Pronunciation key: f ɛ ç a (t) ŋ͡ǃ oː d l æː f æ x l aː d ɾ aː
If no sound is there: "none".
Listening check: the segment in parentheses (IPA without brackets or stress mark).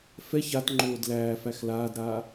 t